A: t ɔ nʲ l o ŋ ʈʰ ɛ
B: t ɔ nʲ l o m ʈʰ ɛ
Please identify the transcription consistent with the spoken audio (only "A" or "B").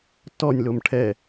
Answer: B